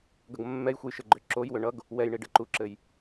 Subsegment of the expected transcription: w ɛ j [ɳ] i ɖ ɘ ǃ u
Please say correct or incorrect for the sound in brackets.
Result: correct